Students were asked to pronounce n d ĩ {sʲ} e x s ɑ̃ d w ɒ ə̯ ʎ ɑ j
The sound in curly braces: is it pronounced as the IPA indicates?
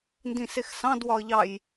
no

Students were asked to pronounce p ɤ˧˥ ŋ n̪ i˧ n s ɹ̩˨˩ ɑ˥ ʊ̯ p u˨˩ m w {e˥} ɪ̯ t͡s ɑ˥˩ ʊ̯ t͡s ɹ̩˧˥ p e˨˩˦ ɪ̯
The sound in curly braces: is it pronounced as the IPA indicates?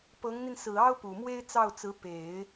yes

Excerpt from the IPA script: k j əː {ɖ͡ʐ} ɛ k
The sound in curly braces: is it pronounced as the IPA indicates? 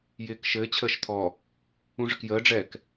yes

